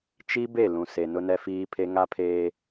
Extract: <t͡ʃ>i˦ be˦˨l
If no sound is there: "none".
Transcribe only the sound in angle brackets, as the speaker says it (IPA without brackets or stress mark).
t͡ʃ